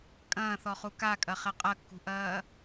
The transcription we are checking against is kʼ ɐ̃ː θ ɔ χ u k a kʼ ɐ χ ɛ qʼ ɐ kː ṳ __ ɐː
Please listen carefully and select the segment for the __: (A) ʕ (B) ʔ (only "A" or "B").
B